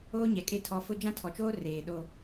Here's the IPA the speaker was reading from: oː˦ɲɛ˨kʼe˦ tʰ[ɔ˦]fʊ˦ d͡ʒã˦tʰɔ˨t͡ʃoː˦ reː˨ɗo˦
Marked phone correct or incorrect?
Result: incorrect: ɔ˨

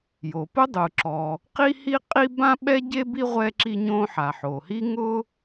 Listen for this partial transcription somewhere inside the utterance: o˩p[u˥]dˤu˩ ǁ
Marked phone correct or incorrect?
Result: incorrect: ʊ˥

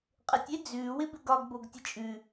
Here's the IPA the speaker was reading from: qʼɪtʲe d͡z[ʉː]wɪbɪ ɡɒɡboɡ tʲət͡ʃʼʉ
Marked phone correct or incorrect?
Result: correct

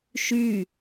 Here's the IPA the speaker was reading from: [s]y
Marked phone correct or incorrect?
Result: incorrect: ʃ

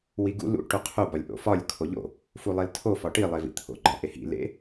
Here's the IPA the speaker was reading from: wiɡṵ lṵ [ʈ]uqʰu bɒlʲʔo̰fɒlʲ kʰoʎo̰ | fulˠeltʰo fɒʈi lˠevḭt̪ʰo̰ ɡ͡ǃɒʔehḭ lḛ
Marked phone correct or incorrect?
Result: correct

